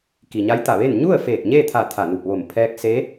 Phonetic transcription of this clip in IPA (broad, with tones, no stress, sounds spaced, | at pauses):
k i˩ ɲ a˧˥ j t̪ a˧˩ ʋ e˥˨ n ɲ u˥˨ ə̯ f eː˧˩ k̚ ɲ e˥˨ t̪ʰ a˧˩ t̪ʰ a˧˩ n u˧˩ p̚ ʋ o˧˩ m pʰ ɛː˧ k̚ s e˧˥